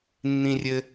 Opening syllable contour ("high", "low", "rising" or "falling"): low